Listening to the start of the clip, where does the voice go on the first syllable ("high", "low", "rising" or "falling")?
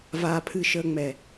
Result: low